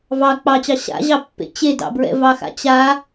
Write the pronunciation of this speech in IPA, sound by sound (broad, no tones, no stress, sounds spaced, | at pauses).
v ɑ k͡p ɑ t͡ɕ ɑ ɕ a̰ ʑ ɑ pː ḛ t͡ɕ e d ɑ̰ b ɹ ɛ̰ v ɑ x a̰ t͡ɕ a